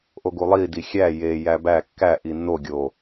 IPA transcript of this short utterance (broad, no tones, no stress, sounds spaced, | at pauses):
ʔ o ɡ u lˠ i d i xʲ æ j e j æ b æ kː æ ʔ i nː o ɡʲ o